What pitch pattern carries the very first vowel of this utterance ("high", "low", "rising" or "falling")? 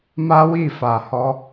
high